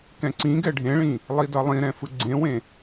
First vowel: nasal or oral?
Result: nasal